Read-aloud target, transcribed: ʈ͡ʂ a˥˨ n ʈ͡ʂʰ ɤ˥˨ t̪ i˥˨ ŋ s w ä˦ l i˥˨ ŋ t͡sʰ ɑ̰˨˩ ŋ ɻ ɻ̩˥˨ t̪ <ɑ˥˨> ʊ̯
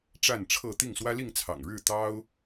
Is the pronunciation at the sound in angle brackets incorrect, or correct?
incorrect: ɑ˦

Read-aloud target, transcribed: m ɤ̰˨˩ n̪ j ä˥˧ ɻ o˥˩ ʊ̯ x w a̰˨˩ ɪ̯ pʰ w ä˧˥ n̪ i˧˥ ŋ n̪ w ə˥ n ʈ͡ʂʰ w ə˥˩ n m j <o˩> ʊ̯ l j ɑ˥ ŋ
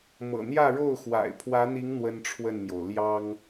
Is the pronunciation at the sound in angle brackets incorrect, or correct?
correct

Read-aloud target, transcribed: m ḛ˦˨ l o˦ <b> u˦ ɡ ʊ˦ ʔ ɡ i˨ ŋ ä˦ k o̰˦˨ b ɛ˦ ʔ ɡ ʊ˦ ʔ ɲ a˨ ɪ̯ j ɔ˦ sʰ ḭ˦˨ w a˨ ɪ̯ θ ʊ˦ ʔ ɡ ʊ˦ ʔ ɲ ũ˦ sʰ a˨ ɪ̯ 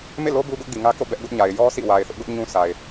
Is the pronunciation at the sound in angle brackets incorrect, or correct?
correct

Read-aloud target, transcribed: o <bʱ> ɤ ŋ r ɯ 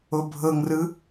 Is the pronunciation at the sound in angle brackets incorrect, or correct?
correct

